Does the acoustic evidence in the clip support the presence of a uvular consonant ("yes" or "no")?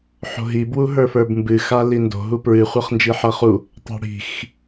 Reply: yes